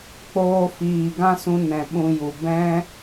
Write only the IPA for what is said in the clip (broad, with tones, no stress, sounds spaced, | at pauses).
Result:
k͡p oː˧ f iː˨ ɡ ã˦ s ũ˧ n ɛ̃˨ ɓ ũ˧ j u˨ b ɛ̃˦